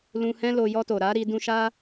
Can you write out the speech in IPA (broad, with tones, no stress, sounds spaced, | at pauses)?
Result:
l ũ˧ h ɛ̃˦ l o˧ j ɔ˧ t o˨ ɾ a˨˦ ɾ i˧ d ũ˧ ʃ a˦